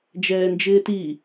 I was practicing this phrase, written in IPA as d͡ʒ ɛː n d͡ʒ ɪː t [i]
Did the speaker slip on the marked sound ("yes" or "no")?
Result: no